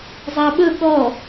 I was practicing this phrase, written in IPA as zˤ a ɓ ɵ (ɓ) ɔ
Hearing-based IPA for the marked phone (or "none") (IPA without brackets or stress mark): ɠ